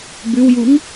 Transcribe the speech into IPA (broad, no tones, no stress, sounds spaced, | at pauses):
b ʉ w j u ŋ